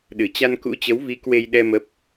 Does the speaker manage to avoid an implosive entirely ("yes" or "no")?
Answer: no